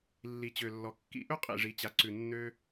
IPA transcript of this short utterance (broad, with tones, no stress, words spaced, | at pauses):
lːi˨t͡ɕø˨lːɔ˨ kːḭ˦ ʔɵ˦qʼḭ˨ʐi˨t͡ɕa˨ ǀʉ˨nːø˧